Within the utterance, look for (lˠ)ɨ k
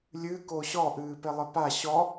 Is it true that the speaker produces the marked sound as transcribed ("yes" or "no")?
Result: no